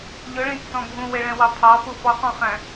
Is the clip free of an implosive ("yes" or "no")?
yes